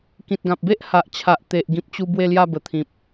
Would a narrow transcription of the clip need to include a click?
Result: no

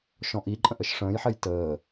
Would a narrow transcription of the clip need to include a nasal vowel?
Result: yes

